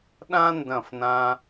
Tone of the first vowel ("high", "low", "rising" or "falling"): high